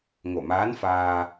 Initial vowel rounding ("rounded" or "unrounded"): rounded